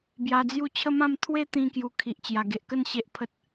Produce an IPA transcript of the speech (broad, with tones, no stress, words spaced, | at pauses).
bja˧d͡zju˥˧ t͡ɕʰə˦mã˥˧m t̪ʰwe˦ t̪ĩ˦kju˧ kʰi˨ʔt͡ɕja˨˩ɡe˨ʔkə˥˧n ɕe˦ʔpʰə˦t̚